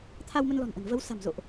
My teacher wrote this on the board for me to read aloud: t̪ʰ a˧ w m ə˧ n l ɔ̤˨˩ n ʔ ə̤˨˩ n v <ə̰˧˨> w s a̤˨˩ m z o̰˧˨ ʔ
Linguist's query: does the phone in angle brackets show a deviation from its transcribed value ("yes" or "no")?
yes